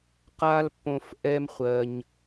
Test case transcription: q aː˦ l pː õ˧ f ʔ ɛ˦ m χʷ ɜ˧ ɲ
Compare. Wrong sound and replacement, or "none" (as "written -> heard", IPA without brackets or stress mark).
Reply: none